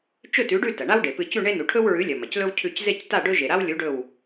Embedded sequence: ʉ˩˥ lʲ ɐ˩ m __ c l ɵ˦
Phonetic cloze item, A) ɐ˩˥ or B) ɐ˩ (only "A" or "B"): B